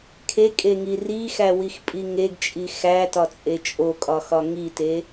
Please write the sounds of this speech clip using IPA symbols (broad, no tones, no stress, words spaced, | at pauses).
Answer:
kʰekʼeŋi rixæwixpʼi ŋeɡt͡ʃʼi xætɒt͡sʼe t͡ʃʼokʼɒxɒ ŋite